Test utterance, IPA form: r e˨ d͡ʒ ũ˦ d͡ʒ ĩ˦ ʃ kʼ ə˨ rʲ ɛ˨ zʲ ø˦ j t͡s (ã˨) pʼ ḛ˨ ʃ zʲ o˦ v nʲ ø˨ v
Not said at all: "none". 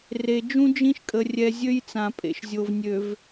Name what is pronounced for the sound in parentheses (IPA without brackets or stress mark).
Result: ã˨